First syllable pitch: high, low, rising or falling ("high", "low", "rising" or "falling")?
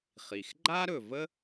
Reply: low